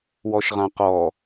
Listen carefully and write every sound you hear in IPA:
wɔʃʁãqɔ

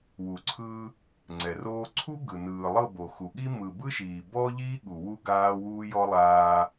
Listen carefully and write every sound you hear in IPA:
wu˨ǀʰɯ˦ | ŋ͡ǀɛ˨roː˦ ǀʰu˦ ɡɯ˨nɯː˨ lˠɤ˦˨bo˨xu˨ɠi˦ mɯ˨bɯ˦ʃiː˨bɔ˦ ʎiː˦ɠu˨ wu˦ɡaː˦wuː˦jɔ˦ lˠaː˦

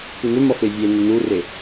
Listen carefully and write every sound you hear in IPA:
kunʏ mʌfevʲe nənure

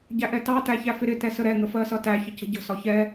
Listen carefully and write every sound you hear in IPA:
ɟæʔɛtɑ tæçæfɪɾɪ tɛsəɾɛ ŋəfɜsʌtæ çəcə̤ɟə̤ sɒçɛ

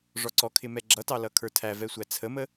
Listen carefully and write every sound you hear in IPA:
ʐɔǀɔkʰɪ mɛɡ͡ǁʌtɑ lʌkʰə˞tʰævɛ sʷæt͡sʰəmə

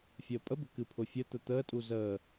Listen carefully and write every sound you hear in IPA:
fʲəːpʼəbə̤ kɨpʰʊfʲət̪ə t̪əːtʼu zəː

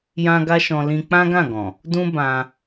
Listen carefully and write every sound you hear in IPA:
jã˦ ɡa˦ʃɔ̃˧ lĩ˧k͡pã˦ɡã˦˨ɡɔ̃˨ | dũ˦ bã˧

